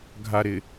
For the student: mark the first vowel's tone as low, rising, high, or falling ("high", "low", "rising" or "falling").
low